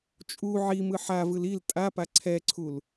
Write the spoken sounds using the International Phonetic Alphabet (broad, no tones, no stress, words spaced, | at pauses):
t͡ʃʼu ʕimɯ ħavɯl il tʼapa ǀʰɛǀʰul